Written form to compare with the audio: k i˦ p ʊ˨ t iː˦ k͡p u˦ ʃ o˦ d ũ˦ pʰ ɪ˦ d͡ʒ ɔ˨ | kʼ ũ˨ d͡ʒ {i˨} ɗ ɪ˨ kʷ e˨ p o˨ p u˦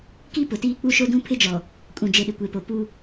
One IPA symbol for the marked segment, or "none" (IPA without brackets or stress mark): e˨